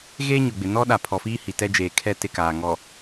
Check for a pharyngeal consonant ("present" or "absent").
absent